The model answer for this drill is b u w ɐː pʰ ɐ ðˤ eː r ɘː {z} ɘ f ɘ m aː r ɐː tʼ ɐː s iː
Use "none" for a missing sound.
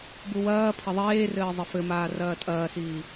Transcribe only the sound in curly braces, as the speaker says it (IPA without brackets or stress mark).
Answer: zˤ